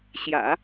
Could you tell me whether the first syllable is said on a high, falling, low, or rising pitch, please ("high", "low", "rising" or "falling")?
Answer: low